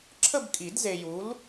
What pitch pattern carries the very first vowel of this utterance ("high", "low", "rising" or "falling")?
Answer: falling